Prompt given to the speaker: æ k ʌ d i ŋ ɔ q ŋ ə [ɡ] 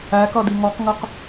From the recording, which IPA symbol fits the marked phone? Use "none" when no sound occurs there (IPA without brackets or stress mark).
q